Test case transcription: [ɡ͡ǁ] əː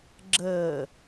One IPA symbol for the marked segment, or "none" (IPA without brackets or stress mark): ɡ͡ǁ